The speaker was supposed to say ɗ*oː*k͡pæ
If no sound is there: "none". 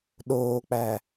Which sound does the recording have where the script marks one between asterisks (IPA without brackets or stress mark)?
oː